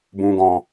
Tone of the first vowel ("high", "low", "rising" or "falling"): low